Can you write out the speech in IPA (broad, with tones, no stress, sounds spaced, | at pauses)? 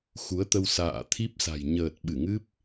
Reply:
x u˨˦ ə̯ t̪ ə˧ w s a̰ː˧˨ t̪ʰ i˦˥ p̚ s a̤˨˩ j ɲ əː˨˩ t̚ ɓ ɨ˧˩ ŋ ɨ˦˥ p̚